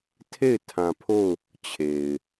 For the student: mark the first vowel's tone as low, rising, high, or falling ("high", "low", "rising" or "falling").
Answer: falling